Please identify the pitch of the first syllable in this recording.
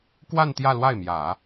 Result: falling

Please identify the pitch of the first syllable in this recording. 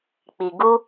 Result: low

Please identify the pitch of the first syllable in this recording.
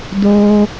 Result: high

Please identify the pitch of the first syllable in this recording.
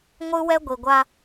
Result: high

